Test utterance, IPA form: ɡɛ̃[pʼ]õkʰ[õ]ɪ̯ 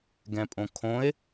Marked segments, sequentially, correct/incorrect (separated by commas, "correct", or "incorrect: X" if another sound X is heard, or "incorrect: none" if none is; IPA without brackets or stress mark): correct, correct